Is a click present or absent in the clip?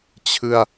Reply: absent